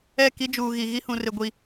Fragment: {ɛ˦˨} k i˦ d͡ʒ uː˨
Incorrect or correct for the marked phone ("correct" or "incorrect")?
correct